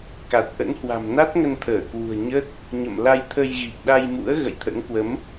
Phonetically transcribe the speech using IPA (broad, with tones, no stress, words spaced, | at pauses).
ka˨˩t̚ʔə̰˧˥nhwa̤˨˩m na˦˥t̚ŋə˧nt̪ʰəː˧˩kwṳ˨˩ə̯ ɲə˦˥t̚ | ɲə̰˧˨mla˧jt̪ʰə˧jɣi˨˩k̚ ɗa˧jmṵ˧˥ə̯ ɣə̰˧˨jt̪ʰə̰˧˥nkwə˨˦m